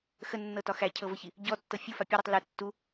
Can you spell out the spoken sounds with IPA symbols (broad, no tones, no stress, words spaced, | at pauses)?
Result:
xənːɤtɒ xæcʰɤvəçi | ɟɔtːɤ fʲufa pʲəɾutˤ lɛ tːu